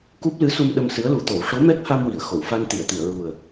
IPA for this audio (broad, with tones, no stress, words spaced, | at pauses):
ku˦˥p̚lɨ˧˥su˧m ɗə˧msɨ˧˥ə̯lu˨˩˦t̪o˨˩˦w ʂo˧˥mɛ˦˥k̚ ha˧mwi˨˩˨ə̯ xo˨˩˨wfa˧n t̪i˨˩˨ə̯t̪i˨˩˨ə̯ɹu˨˩ə̯